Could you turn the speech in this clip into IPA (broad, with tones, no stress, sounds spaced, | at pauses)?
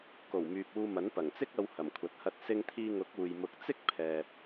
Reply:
k o˨˩ w m yː˨ p̚ uː˧ m ɐ˨˥ n p ɐ˨˩ ŋ t͡s ɪ˥ k̚ ɐ˧ w h ɐ˨˩ m kʷʰ ɐ˨ t̚ h ɐ˧ t̚ s ɪ˧ ŋ t̪ʰ iː˧ ŋ ʊ˨˥ k̚ uː˨ j m ʊ˨ k̚ t͡s ɪ˥ k̚ pʰ ɛː˨ p̚